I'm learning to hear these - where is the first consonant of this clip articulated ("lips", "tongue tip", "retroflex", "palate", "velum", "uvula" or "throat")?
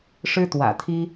retroflex